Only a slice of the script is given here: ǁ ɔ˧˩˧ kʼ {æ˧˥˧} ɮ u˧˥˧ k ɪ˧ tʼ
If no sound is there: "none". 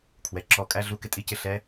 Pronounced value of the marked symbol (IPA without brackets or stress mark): æ˧˥˧